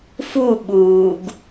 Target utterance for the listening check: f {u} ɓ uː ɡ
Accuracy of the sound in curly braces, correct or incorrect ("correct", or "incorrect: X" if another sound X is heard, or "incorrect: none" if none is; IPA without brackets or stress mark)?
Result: correct